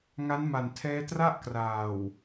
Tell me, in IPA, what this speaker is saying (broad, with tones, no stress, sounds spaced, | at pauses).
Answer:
ŋ a˦˥ n m a˨˩ n tʰ ɛː˦˥ t r a˥˩ ʔ k r aː˨˩ w